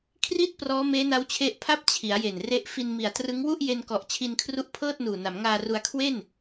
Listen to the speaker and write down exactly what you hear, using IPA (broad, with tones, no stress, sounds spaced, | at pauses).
kʰ r i˥˩ t̚ p r ɔː˦˥ m eː˦˥ n a˦˥ w t͡ɕʰ e˦˥ ʔ pʰ a˥˩ p̚ t͡ɕʰ i˩˦ a̯ j e˨˩ n r e˦˥ ʔ f i˧ n m i˨˩ a̯ t r ɯ˦˥ ŋ w u˥˩ ʔ j e˧ n k ɔ˨˩ ʔ t͡ɕʰ i˧ n kʰ r u˦˥ ʔ pʰ ɤː˥˩ t̚ n uː˨˩ n a˩˦ m ŋ aː˧ r u˧ a̯ kʰ w e˥˩ n